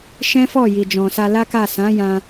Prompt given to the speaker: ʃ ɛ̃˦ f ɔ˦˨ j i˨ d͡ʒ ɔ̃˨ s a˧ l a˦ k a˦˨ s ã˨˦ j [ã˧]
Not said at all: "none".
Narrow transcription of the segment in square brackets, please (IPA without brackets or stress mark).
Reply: ã˧